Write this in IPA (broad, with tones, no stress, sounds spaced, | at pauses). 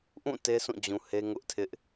ʔ ũ˦˨ t e˦ s ũ˦˨ d͡ʑ ũ˨ h e˦ ŋ ʊ˦ ʔ tʰ ɪ˦ ʔ